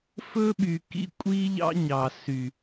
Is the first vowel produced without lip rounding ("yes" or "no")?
no